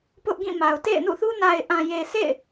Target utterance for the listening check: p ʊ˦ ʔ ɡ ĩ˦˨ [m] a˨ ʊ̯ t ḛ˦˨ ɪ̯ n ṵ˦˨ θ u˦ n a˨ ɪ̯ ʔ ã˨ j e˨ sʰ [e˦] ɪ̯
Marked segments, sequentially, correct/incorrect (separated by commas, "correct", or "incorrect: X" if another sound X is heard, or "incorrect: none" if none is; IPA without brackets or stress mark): correct, incorrect: ḛ˦˨